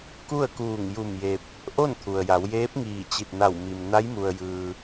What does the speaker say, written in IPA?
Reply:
k u˥˨ ə̯ k uː˧˩ ŋ j u˧˩ m j e˧ p̚ | ʔ o˥˨ n t̪ʰ u˩ ə̯ j a˩˧ w j eː˧˥ p̚ ŋ iː˧˩ t͡ɕ i˧˩ t̚ n a˧˩ w m i˩ m n a˧˥ j m u˩ ə̯ j ɯː˩

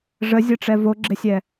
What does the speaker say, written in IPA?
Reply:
ʐ ə zʲ ɤ ʈ͡ʂ ɛ v o ɡ͡ǁ ɪ sʲ ɛ

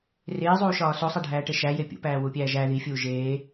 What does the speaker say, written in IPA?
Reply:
r eː zˤ uː ʃ ɒː s o sˤ æ ɖʱ æː ʈ e ʃ æ j e pʲ ṵ p æː w u pʲ æː ʒ æ ð i fʲ uː ʒ eː

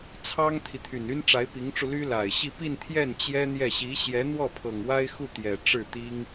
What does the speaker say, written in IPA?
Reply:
t͡sʰ ɑ˥ ŋ t̪ʰ i˨ t̪ʰ y˨˩ n y˥ n ʈ͡ʂ a˧˥ ɪ̯ p i˧˥ ŋ ʈ͡ʂ u˧ l y˥ l a˨˩ ɪ̯ ɕ i˥˧ p i˥˧ n t̪ʰ j ɛ˥˩ n t͡ɕ j ɛ˥ n̪ j ɛ˥˩ ɕ i˧˥ ɕ j ɛ˧˥ n̪ w ɔ˥˩ pʰ ɤ˨˩ ŋ w a˥ ɪ̯ x u˥˩ t̪ j ɛ˨˩ ʈ͡ʂ ɻ̩˥˩ t̪ i˥ ŋ

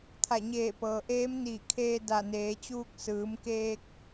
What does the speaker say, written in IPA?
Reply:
t̪ʰ a˧˩ ɲ eː˧˩ p ɤː˩ ʔ eː˧˥ m n iː˧˩ kʰ eː˧ d a˧˩ n eː˩˧ t͡ɕ uː˧ k̚ s ɯː˩˧ m k eː˧ k̚

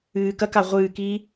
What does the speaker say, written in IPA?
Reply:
ɨː k ɐ k a ʁʷ ɨː k iː

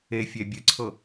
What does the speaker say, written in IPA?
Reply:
e fʲ ɛ bʲ ɯ ǀʰ ɤ

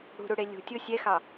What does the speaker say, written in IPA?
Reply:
ɽ ṳ ɾ u ɽ e lʲ ṳ tʲ o sʲ ɛ x ɑ

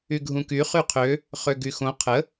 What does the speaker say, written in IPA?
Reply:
y ɡʱ ũ k y χ y qʰ ø | χ ø ɡ y x õ qʰ ə

